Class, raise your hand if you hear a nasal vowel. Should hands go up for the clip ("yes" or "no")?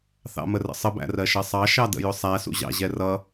no